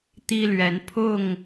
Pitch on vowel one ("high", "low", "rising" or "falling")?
high